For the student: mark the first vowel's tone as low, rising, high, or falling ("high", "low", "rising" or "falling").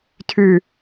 low